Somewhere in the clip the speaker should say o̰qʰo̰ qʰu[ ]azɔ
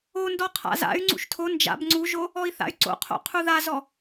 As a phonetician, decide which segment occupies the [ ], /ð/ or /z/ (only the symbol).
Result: ð